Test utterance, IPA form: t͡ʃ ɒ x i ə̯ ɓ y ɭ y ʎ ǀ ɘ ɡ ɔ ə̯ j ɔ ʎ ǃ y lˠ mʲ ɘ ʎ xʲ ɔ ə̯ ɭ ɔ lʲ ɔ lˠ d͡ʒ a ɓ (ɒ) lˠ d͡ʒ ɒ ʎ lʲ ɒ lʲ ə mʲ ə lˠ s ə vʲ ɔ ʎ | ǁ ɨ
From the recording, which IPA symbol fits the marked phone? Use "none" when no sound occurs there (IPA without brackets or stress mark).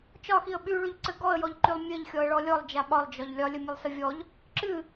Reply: ɒ